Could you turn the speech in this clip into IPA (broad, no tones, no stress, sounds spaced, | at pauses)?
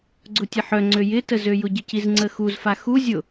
ɡ͡ǀ ʊ tʲ ə ħ œ ŋ͡ǀ ø j ɪ t ə z ø j ʊ ɟ ɪ c i z ŋ͡ǀ ə x u z f a x u zʲ ʊ